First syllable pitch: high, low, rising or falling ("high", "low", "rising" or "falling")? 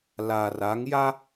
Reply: low